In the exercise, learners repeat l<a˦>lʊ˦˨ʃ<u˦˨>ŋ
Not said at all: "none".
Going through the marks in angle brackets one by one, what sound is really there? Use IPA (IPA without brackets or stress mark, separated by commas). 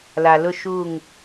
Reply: a˨, u˦˨